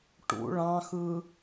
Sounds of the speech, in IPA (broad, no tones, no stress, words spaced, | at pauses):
ʈṵ ɭɑ̃xɯ